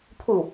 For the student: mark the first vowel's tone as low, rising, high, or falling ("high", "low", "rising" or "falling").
falling